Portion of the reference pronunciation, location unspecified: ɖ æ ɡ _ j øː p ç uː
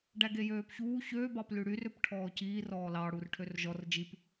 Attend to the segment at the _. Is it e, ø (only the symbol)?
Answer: e